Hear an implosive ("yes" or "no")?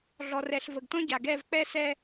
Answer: no